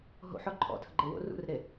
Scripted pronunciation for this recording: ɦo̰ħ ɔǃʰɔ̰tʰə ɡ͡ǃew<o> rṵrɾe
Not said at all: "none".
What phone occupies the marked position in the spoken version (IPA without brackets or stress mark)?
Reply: o̰